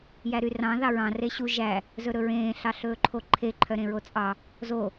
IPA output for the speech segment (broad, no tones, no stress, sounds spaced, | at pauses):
j æ ɾ y r ɑ̃ ð ɑ ɹ ɑ̃ r e ɕ u ʒ æ | z ɵ ɾ ɵ ɹ ẽː ɬ ɑ ɬ ɵː ǃʰ o ǃʰ e ǃʰ œ ɾ ẽ ɹ o t͡sʼ ɑ | z o